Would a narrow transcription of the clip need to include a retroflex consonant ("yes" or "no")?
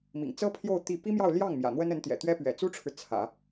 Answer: yes